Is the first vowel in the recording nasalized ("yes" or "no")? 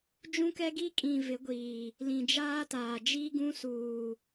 yes